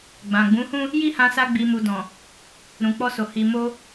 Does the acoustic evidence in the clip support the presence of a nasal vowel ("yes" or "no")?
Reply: yes